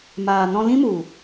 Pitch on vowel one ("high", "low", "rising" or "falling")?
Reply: low